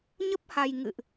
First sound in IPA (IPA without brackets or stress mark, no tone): ɲ